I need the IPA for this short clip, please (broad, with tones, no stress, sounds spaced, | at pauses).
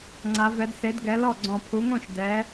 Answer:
ŋ͡ǀ a˨˦ v ɛ˨˦ d s e˨˦ d ɡ ɛ˨˦ l ɔ˥˩ ɡ͡ǀ ɔ̃˨˩ pʰ u˨˦ ŋ õ˥˩ ʃ d ɛ˨˦